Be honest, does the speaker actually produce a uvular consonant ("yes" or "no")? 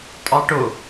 no